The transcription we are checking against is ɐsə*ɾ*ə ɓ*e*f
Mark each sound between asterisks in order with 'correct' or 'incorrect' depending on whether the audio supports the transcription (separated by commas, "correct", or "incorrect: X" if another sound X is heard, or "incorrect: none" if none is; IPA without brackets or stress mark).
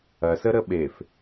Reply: correct, correct